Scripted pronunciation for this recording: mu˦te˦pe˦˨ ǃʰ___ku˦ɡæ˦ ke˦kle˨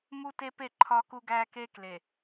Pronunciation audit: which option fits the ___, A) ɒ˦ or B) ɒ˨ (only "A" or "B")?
A